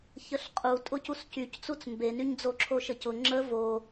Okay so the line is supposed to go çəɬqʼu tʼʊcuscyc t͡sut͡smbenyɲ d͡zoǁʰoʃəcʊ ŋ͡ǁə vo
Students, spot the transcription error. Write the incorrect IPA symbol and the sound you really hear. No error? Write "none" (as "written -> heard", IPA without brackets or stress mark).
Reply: none